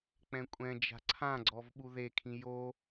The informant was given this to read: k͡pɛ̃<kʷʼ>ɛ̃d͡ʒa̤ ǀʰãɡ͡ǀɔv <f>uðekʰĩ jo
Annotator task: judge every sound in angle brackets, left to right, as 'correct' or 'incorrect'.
correct, incorrect: ɓ

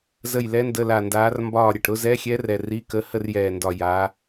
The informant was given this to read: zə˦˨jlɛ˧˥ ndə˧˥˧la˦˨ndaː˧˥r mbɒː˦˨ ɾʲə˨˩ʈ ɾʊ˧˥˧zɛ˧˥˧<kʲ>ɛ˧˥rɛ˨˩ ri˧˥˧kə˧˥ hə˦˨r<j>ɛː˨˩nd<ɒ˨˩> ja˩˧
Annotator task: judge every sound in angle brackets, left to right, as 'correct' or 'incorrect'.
incorrect: xʲ, correct, correct

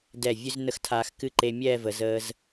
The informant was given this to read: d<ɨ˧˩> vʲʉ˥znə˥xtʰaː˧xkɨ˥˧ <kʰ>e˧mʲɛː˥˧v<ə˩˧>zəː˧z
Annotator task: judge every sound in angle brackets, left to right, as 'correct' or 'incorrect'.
incorrect: ɛ˧˩, incorrect: ǃ, correct

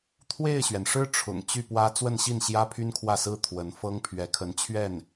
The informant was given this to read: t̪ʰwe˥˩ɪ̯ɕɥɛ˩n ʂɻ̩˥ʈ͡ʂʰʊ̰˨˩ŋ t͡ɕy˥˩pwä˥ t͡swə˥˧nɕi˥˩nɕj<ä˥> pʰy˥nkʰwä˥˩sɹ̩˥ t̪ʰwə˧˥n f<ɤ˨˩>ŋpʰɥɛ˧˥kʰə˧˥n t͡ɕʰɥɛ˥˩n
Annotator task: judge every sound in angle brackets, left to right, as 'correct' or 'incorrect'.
correct, incorrect: ɤ˥

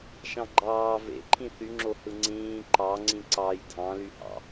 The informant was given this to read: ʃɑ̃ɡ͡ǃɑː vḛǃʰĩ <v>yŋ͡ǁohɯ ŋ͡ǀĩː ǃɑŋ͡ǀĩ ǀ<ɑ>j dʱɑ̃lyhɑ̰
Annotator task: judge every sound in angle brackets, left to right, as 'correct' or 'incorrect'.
incorrect: θ, correct

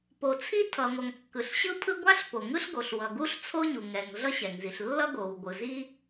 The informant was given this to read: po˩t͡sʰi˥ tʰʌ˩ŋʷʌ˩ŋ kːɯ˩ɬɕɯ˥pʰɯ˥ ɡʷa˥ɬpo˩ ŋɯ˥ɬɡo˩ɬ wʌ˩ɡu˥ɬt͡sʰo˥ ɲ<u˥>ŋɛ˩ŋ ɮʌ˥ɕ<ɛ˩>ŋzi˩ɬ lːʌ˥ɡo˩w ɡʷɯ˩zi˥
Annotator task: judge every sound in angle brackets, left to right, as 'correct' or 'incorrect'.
incorrect: u˩, correct

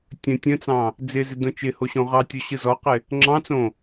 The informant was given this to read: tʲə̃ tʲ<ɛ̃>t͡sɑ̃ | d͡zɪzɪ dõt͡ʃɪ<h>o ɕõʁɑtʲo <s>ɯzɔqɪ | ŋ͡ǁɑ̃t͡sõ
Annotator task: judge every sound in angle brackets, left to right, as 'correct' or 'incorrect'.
incorrect: ə̃, correct, incorrect: ɕ

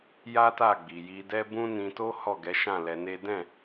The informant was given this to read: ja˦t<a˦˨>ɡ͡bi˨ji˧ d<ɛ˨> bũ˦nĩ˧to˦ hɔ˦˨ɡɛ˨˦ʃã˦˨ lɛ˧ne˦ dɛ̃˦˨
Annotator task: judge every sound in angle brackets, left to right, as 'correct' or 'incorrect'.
correct, incorrect: ɛ˦

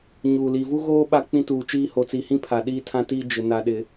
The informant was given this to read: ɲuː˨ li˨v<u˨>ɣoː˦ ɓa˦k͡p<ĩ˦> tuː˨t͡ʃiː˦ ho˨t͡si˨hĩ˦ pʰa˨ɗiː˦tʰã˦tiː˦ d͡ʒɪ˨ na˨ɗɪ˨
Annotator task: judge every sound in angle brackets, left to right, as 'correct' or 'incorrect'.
incorrect: u˦, correct

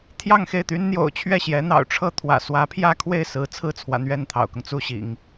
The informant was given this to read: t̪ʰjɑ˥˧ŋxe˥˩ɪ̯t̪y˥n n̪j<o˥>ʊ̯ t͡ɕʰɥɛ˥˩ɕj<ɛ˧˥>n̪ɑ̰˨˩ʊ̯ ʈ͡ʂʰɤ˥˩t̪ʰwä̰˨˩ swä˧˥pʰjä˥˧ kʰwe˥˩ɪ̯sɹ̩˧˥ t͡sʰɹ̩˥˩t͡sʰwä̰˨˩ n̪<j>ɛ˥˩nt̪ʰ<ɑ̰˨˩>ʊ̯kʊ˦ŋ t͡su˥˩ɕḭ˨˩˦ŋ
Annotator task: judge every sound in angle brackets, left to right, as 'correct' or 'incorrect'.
incorrect: o̰˨˩, correct, incorrect: ɥ, correct

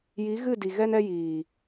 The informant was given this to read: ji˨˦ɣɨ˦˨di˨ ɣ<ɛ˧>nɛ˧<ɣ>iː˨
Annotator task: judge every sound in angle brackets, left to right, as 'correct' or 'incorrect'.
correct, incorrect: j

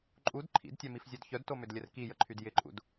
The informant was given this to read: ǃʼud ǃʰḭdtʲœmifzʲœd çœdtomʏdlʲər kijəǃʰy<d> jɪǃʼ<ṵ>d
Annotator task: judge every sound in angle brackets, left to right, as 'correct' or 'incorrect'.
correct, correct

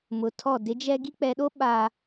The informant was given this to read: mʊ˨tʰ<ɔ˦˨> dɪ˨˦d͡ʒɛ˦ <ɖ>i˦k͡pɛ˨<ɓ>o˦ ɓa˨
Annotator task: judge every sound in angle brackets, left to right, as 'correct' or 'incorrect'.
correct, incorrect: ɡ, incorrect: ɗ

